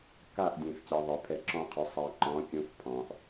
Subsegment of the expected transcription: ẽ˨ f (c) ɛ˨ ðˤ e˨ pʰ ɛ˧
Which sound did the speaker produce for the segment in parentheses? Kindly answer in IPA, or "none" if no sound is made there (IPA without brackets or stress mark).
c